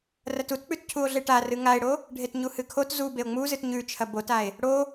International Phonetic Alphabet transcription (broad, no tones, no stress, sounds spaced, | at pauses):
r ɐ t u t k͡p ʉ t cʰ u o̯ ɮ e ʈ a r ɨ ŋ a e̯ ɽ o | ɖʱ e t ɲ u h ɨ kʰ o t z u b e o̯ ŋ͡m u z ɨ t ɲ ʉ t͡ʃʰ ɐ b o t a e̯ | ɽ o